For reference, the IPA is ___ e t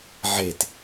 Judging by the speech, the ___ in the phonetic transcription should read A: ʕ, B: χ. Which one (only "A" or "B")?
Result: A